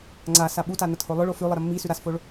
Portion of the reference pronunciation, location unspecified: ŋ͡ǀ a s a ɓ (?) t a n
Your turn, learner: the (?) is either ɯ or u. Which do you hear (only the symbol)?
u